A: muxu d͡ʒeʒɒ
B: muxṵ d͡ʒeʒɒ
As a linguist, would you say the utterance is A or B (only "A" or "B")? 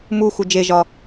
A